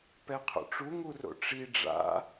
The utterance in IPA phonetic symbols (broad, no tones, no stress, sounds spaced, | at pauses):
p ɛ qʰ o̰ ʈ͡ʂ u ŋ u r o̰ ʈ͡ʂ i ɖ͡ʐ a̰